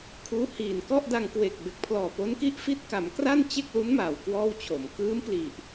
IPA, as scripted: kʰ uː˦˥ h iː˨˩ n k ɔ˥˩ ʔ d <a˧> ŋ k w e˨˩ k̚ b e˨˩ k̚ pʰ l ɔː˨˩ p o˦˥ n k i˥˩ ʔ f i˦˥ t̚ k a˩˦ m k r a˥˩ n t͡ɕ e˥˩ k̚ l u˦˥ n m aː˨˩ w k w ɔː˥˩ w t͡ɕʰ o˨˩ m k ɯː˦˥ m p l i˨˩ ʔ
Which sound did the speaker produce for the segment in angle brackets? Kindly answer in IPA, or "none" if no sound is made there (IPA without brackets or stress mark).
a˧